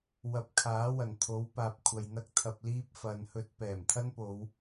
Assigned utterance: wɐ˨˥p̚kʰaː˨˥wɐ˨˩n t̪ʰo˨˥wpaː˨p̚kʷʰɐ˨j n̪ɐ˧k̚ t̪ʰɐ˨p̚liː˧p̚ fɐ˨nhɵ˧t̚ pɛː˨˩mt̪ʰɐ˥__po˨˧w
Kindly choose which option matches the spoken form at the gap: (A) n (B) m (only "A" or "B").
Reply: A